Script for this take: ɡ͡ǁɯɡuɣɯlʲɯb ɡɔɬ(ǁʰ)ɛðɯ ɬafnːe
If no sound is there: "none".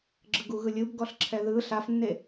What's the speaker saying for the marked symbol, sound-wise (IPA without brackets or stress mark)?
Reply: ǁʰ